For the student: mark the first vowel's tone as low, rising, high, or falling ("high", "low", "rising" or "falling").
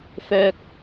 low